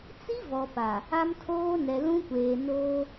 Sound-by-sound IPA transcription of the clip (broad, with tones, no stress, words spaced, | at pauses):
t͡si˦vɔ˨pa˨ | a˦mtʰoː˦nɛ˨ lũ˦kʷeː˨ noː˦